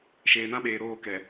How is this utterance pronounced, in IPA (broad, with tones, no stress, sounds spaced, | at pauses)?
ʃ eː˨ n ã˦ ɓ eː˨ ɾ oː˦˨ k ɛ˨